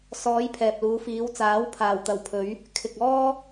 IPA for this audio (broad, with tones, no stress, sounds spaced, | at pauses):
s ɔː˨˧ j pʰ ɛː˨ p̚ l uː˨˧ f iː˨˧ w t͡s aː˨˥ w pʰ aː˨˩ w t̪ ɐ˨˩ w pʰ ɵ˨˧ ɥ | kʰ ɪ˨ k̚ ɔː˥